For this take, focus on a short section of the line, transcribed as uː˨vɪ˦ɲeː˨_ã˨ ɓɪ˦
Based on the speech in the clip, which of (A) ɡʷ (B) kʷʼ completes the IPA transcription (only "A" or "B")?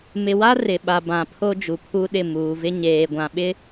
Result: A